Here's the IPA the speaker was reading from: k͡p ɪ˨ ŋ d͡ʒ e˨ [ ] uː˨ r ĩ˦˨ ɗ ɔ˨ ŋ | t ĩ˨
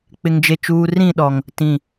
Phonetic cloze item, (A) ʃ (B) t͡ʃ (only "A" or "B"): B